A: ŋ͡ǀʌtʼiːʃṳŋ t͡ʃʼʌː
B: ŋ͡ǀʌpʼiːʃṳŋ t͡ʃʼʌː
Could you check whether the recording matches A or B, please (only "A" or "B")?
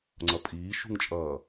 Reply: B